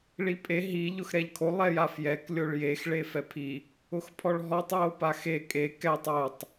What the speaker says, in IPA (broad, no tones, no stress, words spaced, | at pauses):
ɭipʼe ɦi ʎʊxɾɛʎkʰo lˠɛjafjɛk lʲoɭjex ɭefɛpʰi | ʊxpʰɔɭɦɔtˤ jopaxe kʼe kɛtˤ otˤ